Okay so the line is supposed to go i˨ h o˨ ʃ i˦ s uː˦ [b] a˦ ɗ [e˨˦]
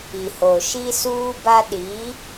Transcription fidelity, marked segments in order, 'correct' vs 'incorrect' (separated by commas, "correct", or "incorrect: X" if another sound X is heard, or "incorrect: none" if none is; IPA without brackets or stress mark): correct, incorrect: i˨˦